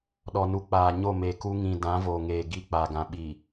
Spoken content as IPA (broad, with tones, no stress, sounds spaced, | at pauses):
ɗ ɔ˨ n u˨ k͡p aː˨ ɲ o˦˨ m e˨ k u˦ ŋ ĩ˨ d ã˨˦ v oː˨ ŋ eː˨ ɡ i˦ k͡p a˨ ɡ ã˨ ɓ i˨